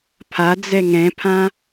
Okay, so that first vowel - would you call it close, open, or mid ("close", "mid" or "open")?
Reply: open